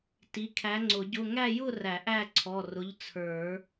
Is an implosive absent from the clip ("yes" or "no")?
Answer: yes